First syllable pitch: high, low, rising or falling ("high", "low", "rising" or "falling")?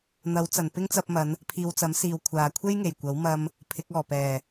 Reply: rising